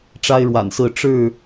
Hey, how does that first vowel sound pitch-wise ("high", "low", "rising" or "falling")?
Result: high